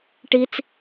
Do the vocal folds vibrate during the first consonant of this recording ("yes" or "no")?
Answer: no